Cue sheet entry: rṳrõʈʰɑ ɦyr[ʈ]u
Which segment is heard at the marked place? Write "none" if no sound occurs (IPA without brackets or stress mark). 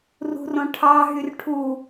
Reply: ʈʰ